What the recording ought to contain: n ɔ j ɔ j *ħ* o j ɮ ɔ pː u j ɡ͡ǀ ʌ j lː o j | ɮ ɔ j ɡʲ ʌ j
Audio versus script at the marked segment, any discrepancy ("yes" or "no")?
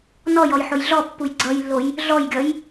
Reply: no